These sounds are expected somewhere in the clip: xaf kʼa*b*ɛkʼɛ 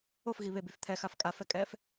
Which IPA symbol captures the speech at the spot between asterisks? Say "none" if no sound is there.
f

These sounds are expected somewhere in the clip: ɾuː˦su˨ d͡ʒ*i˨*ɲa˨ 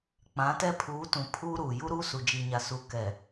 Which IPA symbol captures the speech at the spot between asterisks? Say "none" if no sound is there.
i˨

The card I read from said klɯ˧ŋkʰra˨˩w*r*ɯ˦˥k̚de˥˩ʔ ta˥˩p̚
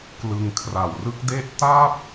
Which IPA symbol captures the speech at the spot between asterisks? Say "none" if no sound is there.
r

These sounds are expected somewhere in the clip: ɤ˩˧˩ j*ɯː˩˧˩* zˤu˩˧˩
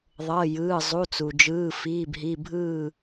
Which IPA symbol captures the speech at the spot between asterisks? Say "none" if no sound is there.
ɯː˩˧˩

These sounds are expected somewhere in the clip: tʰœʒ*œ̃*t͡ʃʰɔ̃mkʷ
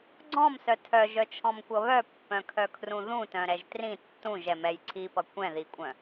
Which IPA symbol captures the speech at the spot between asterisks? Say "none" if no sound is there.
œ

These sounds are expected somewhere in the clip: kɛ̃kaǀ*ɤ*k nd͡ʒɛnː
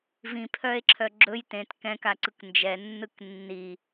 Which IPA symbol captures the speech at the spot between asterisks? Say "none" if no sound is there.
ɯ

